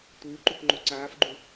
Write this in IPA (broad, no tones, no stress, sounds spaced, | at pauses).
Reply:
tʷ ɯː ǃ u k ŋ͡ǃ o ǀ aː f ɡ͡ǃ u